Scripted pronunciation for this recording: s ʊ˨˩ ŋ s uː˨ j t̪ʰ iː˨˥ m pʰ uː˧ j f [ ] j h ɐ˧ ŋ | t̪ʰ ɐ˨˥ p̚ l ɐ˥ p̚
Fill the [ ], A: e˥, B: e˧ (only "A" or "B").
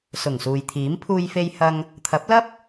B